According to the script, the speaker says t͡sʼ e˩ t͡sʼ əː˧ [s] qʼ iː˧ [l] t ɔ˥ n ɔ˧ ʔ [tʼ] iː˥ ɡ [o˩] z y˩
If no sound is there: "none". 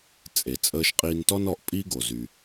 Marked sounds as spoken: ʃ, n, pʼ, o˩

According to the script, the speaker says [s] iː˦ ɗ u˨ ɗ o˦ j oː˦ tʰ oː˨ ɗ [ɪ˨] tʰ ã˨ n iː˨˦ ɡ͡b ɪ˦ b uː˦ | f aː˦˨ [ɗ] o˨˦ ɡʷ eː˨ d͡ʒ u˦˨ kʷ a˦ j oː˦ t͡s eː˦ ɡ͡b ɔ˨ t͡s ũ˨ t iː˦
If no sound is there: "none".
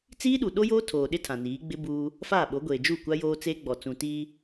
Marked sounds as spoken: t͡s, ɪ˦, ɓ

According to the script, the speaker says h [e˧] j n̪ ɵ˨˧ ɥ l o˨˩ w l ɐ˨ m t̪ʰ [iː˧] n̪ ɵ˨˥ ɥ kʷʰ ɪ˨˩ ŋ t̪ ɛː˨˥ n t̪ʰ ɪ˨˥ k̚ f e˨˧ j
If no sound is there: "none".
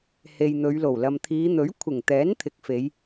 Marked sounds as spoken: e˨, iː˨˧

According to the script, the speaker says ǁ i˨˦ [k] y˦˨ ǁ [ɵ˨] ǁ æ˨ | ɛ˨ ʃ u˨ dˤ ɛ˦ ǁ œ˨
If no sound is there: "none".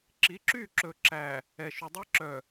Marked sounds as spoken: ǁ, ɵ˨

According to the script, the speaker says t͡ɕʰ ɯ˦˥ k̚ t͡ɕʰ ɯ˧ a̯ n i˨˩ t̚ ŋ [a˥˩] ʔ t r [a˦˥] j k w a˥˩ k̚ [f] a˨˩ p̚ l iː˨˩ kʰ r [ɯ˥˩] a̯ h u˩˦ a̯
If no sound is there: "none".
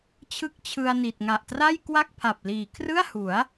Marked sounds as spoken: a˨˩, a˥˩, pʰ, ɯ˥˩

